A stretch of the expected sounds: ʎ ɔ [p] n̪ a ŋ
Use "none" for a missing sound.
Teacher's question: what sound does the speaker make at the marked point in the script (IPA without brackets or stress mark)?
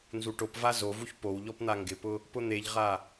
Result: p